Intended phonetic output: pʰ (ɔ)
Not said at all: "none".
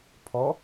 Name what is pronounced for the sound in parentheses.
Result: ɔ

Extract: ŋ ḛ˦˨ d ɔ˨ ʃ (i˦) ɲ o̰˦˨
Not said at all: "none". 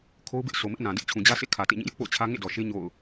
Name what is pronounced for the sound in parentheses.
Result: e˦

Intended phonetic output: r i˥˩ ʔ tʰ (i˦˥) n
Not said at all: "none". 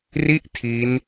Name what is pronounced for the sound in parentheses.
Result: i˦˥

